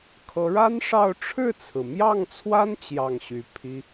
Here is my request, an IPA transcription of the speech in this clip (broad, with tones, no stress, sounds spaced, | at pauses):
kʰ ɤ˧˥ ɻ a˥ n ʂ ɑ˥˧ ʊ̯ ʈ͡ʂʰ ɻ̩˥˩ t͡sʰ ɹ̩˩ m j ɑ˥˩ ŋ t͡sʰ w a˥ n t͡ɕ j ɑ˥˩ ŋ ɕ y˧˥ pʰ i˥